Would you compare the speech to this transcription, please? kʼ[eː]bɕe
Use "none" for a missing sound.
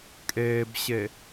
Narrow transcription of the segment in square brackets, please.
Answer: eː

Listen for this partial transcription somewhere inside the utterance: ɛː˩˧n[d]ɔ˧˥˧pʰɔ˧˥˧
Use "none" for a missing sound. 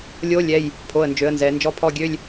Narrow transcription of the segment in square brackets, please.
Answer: d͡ʒ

